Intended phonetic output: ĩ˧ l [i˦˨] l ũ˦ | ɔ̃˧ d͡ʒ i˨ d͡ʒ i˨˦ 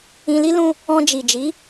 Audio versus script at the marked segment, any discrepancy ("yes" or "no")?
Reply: yes